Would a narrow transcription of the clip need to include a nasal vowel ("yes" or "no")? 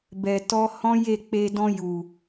yes